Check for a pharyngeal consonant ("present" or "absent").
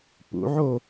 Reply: present